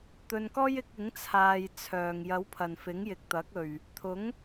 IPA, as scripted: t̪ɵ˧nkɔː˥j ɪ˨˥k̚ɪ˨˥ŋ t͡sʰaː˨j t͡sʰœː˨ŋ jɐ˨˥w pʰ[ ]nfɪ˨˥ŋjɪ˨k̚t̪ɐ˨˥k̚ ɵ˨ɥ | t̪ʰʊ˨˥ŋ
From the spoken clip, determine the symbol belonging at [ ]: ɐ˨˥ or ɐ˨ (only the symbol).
ɐ˨